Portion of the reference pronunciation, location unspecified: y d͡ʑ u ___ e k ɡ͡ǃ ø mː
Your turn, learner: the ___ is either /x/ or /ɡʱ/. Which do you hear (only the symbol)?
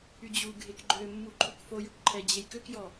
ɡʱ